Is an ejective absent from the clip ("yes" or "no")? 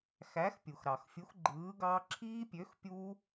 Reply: yes